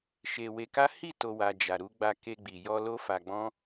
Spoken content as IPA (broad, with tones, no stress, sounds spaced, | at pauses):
ʃ e˧ w e˧ k a˦ h i˦˨ t o˨ w a˨ d͡ʒ a˨ ɾ u˨˦ ɡ͡b a˧ k e˧ ɡ͡b i˨ j ɔ˧ l o˦ f a˧ ɡ͡b ɔ̃˦